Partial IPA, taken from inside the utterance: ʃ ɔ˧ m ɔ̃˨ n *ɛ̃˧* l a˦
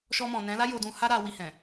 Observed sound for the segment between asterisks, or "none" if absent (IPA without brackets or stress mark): ɛ̃˨˦